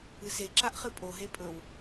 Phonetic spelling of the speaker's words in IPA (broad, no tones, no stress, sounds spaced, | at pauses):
ɨ s e ǁ a ʔ χ ɨ pʼ o ɦ e pʼ ɵ w